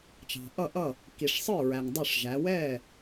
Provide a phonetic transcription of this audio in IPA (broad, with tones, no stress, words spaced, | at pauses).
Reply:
t͡ʃɑ̤˨ʔʌ˥˨ʔʌ˥˨ | ki˨ʂsˤə˞˥˨ɹæ˨ŋ dˤʊ˥˨ʂʒæ˨˦ wɛ˥˨